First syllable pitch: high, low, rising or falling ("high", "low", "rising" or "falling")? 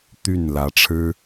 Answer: falling